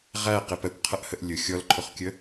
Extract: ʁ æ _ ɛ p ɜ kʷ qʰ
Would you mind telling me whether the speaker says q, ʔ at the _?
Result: q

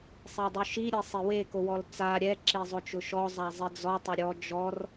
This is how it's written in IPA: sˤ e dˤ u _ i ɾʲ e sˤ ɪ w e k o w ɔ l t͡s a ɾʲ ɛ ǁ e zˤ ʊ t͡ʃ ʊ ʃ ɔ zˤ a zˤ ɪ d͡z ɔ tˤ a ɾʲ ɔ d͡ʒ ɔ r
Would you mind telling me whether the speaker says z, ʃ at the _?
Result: ʃ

